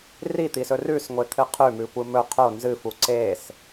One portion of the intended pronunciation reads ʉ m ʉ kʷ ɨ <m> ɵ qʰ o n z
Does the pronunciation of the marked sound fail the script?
no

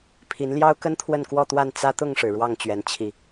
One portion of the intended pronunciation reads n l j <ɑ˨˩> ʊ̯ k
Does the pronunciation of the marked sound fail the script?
yes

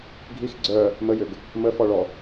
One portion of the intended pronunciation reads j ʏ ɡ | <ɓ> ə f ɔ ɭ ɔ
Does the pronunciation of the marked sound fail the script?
yes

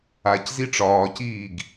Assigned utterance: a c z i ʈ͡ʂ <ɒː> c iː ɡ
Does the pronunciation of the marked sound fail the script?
no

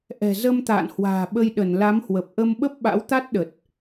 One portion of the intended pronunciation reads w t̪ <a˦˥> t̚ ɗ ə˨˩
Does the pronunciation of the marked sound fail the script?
no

